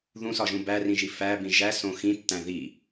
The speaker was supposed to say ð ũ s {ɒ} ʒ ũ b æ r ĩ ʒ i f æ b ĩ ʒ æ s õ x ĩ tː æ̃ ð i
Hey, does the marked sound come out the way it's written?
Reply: yes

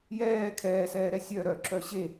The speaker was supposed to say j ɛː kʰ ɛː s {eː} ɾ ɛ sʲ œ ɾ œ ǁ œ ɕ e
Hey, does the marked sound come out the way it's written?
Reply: no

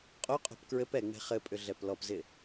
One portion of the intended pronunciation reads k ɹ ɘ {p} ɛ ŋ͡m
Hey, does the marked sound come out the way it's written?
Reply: yes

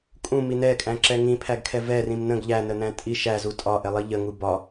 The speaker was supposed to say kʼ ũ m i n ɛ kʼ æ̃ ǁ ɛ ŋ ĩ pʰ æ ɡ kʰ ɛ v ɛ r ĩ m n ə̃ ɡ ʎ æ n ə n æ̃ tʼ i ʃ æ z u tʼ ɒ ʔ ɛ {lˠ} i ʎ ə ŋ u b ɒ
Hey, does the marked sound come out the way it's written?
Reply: yes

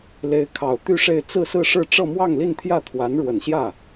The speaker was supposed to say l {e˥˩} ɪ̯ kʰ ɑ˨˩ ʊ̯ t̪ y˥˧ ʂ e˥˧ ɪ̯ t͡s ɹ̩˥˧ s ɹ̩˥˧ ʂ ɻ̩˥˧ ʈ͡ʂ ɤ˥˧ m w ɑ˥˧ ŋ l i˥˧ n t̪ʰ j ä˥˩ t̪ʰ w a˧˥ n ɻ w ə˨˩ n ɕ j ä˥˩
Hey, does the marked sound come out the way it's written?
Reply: no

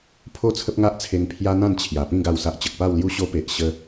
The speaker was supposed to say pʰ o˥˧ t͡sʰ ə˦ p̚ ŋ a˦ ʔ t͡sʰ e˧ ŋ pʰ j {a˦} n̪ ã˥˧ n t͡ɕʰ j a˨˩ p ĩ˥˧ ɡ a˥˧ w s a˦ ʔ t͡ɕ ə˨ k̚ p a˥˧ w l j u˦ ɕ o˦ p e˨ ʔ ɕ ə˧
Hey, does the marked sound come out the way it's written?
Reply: yes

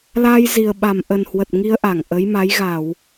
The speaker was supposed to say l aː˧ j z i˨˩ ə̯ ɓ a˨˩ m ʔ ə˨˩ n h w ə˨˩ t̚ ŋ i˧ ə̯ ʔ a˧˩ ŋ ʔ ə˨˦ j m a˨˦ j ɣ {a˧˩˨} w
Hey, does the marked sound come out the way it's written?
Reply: yes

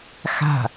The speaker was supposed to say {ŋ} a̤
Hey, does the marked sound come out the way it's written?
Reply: no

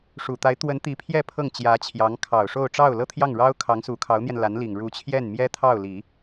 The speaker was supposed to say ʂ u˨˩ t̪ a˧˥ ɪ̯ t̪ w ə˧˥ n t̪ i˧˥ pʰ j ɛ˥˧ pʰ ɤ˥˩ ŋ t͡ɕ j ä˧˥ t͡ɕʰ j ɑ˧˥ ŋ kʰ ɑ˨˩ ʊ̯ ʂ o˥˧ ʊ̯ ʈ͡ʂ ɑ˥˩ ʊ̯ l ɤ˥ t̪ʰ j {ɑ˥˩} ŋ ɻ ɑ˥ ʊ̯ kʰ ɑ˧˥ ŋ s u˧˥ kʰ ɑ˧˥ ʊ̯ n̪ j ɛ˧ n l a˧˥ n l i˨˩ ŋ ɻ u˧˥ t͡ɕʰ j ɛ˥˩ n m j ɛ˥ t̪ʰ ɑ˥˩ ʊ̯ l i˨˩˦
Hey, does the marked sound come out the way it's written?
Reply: yes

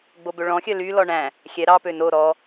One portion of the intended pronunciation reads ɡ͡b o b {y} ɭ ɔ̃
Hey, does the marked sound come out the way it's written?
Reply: no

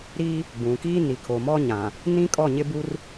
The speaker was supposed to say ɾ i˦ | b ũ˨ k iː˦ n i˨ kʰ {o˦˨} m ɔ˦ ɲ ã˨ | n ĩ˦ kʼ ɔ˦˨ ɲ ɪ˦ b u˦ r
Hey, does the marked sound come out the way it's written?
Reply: no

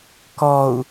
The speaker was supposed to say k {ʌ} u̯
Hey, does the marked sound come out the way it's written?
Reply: no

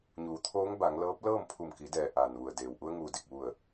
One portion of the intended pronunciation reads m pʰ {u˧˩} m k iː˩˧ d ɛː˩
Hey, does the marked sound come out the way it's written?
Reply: yes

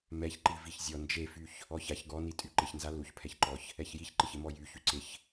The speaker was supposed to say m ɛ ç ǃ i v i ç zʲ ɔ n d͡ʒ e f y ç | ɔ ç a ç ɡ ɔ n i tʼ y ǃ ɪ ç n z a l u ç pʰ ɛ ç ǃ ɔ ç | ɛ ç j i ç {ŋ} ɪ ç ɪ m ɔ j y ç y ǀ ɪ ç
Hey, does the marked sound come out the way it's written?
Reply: no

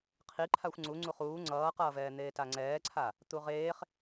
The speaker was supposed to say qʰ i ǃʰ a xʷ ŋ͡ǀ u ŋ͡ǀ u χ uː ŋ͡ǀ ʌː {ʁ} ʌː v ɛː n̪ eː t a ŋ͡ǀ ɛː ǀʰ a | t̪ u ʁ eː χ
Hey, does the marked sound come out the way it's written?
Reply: no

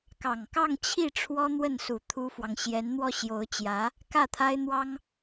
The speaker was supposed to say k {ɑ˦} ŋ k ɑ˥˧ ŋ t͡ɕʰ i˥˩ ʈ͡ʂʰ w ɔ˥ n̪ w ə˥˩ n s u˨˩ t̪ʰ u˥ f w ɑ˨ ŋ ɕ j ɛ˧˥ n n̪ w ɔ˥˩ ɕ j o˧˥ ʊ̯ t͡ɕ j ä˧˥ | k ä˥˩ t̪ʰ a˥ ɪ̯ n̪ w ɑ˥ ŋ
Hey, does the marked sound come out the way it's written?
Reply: no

